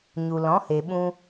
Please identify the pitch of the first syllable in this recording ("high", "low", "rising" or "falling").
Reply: low